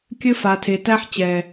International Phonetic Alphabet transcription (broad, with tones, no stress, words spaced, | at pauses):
kʲɘ˦ fa˨tʰe˨tæ˦ħ t͡ɕɛ˨